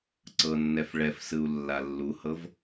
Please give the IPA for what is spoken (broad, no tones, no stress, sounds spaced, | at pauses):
ǀ ɤ nː ɛ f ɭ ɛ f s ɯ u̯ lː a lː u h ɤ v